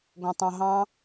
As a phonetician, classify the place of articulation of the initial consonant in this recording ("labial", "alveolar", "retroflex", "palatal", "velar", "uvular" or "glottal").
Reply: velar